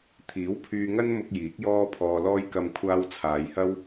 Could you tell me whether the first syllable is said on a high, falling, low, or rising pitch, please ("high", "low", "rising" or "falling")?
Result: rising